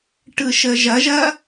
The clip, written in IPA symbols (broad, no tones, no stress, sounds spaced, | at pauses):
ʈ ɯ ʃ ə ʒ ɐ ʒ ɐ